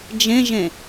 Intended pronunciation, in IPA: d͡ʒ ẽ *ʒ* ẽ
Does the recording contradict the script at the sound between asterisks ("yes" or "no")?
no